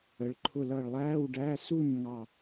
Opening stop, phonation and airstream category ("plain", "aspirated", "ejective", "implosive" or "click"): click